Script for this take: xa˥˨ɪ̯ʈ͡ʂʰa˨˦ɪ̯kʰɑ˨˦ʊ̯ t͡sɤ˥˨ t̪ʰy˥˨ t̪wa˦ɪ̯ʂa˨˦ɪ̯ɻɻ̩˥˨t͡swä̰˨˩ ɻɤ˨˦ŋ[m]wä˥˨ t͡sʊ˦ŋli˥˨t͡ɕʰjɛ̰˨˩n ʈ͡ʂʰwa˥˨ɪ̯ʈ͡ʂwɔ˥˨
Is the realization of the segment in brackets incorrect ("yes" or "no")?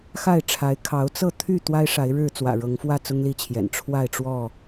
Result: yes